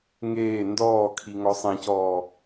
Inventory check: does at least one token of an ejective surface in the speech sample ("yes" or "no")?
no